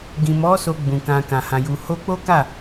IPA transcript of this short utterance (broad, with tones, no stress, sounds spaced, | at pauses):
ɡ ĩ˨ m ɔ˨˦ s o˧ ɡ͡b ũ˨ k ã˨ k ã˨ h ã˨ j u˨ h o˧ k͡p o˦ k a˦˨